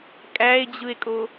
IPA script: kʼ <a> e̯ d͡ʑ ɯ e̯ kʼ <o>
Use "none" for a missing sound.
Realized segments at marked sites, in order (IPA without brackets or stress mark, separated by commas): æ, o